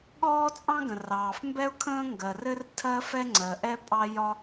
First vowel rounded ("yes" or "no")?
yes